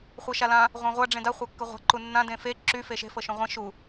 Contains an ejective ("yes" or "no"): no